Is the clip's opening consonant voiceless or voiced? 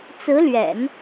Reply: voiceless